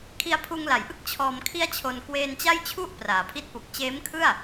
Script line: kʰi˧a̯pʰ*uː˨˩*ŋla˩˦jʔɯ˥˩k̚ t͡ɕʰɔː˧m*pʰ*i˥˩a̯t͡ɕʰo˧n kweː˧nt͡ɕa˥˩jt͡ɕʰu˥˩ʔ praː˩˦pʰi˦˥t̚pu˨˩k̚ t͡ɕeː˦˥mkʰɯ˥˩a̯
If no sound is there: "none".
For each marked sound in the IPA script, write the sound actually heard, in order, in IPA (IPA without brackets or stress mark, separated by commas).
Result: uː˧, kʰ